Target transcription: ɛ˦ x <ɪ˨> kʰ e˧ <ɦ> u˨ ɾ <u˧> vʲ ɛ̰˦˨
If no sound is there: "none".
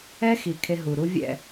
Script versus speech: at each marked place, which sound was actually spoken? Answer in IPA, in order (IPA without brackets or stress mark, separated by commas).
i˨, ɦ, u˦